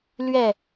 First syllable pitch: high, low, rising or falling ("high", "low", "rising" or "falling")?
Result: falling